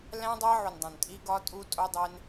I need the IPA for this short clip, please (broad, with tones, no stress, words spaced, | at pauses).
læ̃˦dˤæ˦ ʕu˨ndˤõ˨ntʼi˧ ɡɒ˧tʼu˧ tʼo˦dˤe˦n